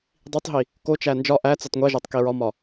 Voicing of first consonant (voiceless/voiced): voiced